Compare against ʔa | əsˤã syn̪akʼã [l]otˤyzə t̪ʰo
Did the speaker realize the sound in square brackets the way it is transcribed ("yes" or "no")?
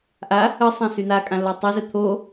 yes